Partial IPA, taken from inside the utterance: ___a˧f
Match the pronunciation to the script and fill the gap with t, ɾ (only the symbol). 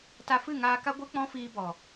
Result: t